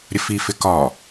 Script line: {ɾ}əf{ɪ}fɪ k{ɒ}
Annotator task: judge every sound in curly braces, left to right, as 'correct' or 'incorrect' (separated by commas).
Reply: incorrect, incorrect, correct